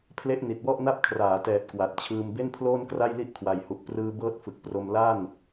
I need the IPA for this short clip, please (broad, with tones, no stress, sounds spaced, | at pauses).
pʰ l e˥˩ ʔ n i˨˩ t̚ w ɔ˥˩ ʔ n a˥˩ p̚ kʰ r aː˩˦ t ɛː˨˩ t̚ k w a˨˩ t̚ t͡ɕʰ ɯː˧ m b e˥˩ n pʰ l oː˥˩ n k r a˥˩ j l i˥˩ ʔ kʰ w a˨˩ j h u˨˩ ʔ p r ɯː˧ b ɤː˦˥ t̚ f ɯ˨˩ k̚ p r o˧ m l a˥˩ n